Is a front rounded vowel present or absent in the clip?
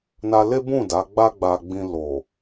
absent